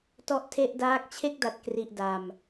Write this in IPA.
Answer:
t ɔ˦˥ ʔ tʰ e˥˩ ʔ d aː˥˩ k̚ t͡ɕʰ e˥˩ k̚ d a˨˩ t̚ k r i˨˩ ʔ d a˨˩ m

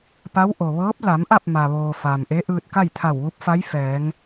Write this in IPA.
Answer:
p a˧˥ w ʔ o˩ ʋ ɤː˧˥ p̚ l a˩˧ m ʔ a˥˨ p̚ m a˩ ʋ oː˩ f aː˩ m ʔ e˧˥ ʔ ɯː˧ t̚ k a˥˨ j t̪ʰ a˧˩ w ʋ u˧˥ p̚ f a˧˥ j f ɛː˩˧ ŋ

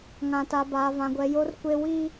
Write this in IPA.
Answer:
ŋ ã˨ t a˨ b aː˨ v ã˨ ɡʷ ɛ˨ j o˦ r kʷ e˦ w i˦

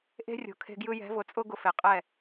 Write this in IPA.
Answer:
ʔ e̤˦ rʲ o̤˨ kʰ e̤˦ ɡ j ɯ˦ j ɛ̤˨˦ v ʊ˨ t͡sʼ ʊ˦ ɡ ʊ˦ f e˨ qʼ ɛ˦˨

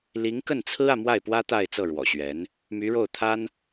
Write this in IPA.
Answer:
l i˧˥ ŋ k ə˥˩ n t͡sʰ ɹ̩˥ ä˨ m w a˥˩ ɪ̯ p w ä˥ t̪ a˥˧ ɪ̯ t͡s ɤ˥˩ ɻ w ɔ̰˨˩ ɕ ɥ ɛ˧˥ n | m y˧˥ ɻ o˥˩ ʊ̯ t̪ʰ a˥ n

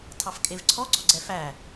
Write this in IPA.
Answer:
tʰ ɑ f kʼ e v ǀʰ ɔ ɡ͡ǀ ɔ ɡ͡ǀ ɛ f æ

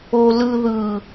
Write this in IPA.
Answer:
o l ɯ ð ɯ

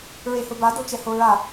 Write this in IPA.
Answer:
ɹ e h ʊ b a d o t͡ʃ ɛ h o ɹ a

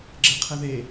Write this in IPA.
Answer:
ɡ͡ǁ e qʰ ɛ ð e

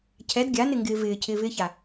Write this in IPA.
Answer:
cʰ ɛ d ɡʲ a n ɪ ŋ ɡ ɪː v ɪː cʰ ɪː v ɪː ç a

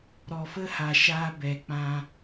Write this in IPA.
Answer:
ɾ ɔ˨ f ə˧ h a˨ ʃ aː˧ b ɛ˨ k͡p ã˧

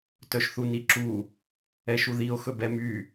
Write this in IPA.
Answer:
t œ ʃ θ u n i ǁ u | ɛ ʃ u ð i o̯ x ɵ b ɛ m y

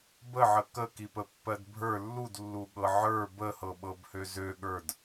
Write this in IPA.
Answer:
b ə ʕ ə k ə k i p ə pː ɜ d bʱ ə˞ lː u d lː u ɠ ɤ ʕ ə˞ b ə h ɤ ɓ ɤ b h ø z ø ɠ ə˞ d

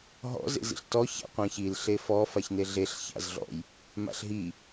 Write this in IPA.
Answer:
ɦ ɔ̰ z ḛ z ḭ ɬ t ɔ ç a̰ qʷ ã ç i l ɬ e f ɔ f a ç n e ɮ e ɬ ç a̰ z ɮ ɔ̰ j | m a̰ ɬ ɦ i

